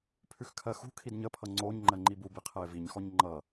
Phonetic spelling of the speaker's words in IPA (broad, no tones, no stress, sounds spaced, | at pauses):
pʰ ʉ x kʰ ɜ x ṳ kʰ i d ɲ ə pʰ ʌ ŋ͡ǀ o ɲ ŋ͡ǃ ɜ ŋ͡ǃ i b u b i qʰ ɛ ɪ̯ v i ɲ x ɔ ɲ ŋ͡ǃ ʌ